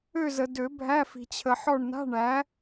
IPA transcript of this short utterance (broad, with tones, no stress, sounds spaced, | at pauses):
ø˦˨ z ə˨ d ø˨˩˦ bʱ æ˧˥˧ f i̤˨ t͡ɕʰ ə˨ ħ ɔ˦˨ ɳ n a̤˧˥˧ ɳ æ˨˥